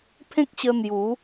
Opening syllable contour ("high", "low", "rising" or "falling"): high